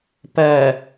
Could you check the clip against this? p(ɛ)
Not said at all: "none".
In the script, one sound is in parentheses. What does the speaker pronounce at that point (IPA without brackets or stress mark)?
ɜ